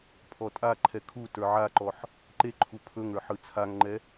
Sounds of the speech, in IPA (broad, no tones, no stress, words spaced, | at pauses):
pʰɔtʼaǃʰɛ kʰu tə˞ʕaǃɔħ | ǃe ǃʰupʰɵŋə˞ ħɯt͡sʰaŋŋ͡ǃɛ